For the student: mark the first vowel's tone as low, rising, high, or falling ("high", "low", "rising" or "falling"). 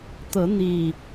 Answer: rising